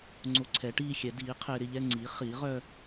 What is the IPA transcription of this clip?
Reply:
ŋ͡ǀ o˧ ǀʰ ɛ˩˥ ʈ iː˥˧ xʲ ɛ˩˥ d iː˩˥ qʰ ɪː˧ ɾ ɪ˥˧ ʎ ɛ˥˧ ŋ͡ǀ iː˩˥ χ iː˩˥ ʁ œ˥˧

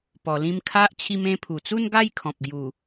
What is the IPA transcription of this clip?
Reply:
p ɔ˧ l ĩ˦ m kʰ a˦ ʔ t͡ɕʰ i˧ m ẽ˧ pʰ u˨˩ t͡s u˥˧ n ɡ a˥˧ j kʰ ɔ̃˨ p̚ ɡ j u˨˩

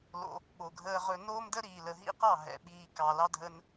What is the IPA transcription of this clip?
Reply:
l o̰˧ | ɓ o˨ ɡʱ əː˧ ʁ ɵ˧ n oː˦ m d ə˦ ɾ iː˨ l ə˨ ɦ ḭ˦ q ɑ˦˨ ɦ ɛ̰˨ ɓ iː˧ k ɑ˨ l ɑ˦ dʱ ə˦ n

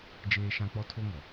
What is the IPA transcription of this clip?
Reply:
d͡ʒ eː˦ ʃ ã˦ k͡p ɔ˦ tʰ o˦ ŋ ɔ˨

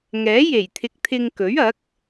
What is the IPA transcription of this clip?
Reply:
ŋ ɛː˨˥ j e˨˩ j t̪ʰ ɪ˨ k̚ t̪ʰ ɪ˧ ŋ k ɵ˨˥ ɥ ɐ˨˥ k̚

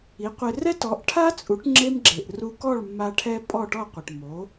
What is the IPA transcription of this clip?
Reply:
i˩˥ qʷ ɪ˧ r ɛ˥ t ɔ˩˥ ʔ ʈʰ a˥ t͡sʼ u˩˥ ʈ ŋ͡ǁ e˥ m ɡ͡ǁ e˩ ʔ r u˧ k ɔ˥˩ ɭ mː a˧ ʈʰ ɛ˧ pʼ ɔ˥˩ ʈ ɔ˥˩ qʷ ɪ˩ ʈ m o˩˥

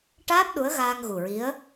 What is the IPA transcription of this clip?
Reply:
ʈ aː˦˥ p̚ ɗ u˧˥ ə̯ ɣ aː˧ ŋ ɣ u˨˩ ɹ i˧˥ ə̯

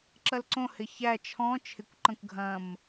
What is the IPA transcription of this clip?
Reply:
ǁ ɐ l ǀ õ h ɪ ç æ t͡ʃʰ ɔ̃ t͡ʃʰ ɪ kʷ ǃ ɐ̃ kʷ ɡʱ ɐ̃ m

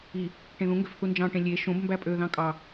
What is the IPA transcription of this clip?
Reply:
i | ʈ ẽ ð ũ ŋ ɡ ø f θ u n d͡ʒ ɑ̃ ʈ ẽ lʲ e ʃ õ b m b æ pʼ ø ð ɑ̃ kʼ ɑ

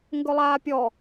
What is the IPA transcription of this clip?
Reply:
ŋ ɡ ɵ lˠ aː pʲ ɔ

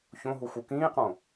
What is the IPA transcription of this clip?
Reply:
ç õ ɦ u x u k ĩː q õ

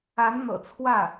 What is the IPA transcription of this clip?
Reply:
a˧˥ n n̪ ɤ̰˨˩ t͡sʰ w ä˥˩

